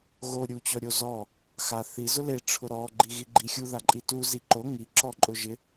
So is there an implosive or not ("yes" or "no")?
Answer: no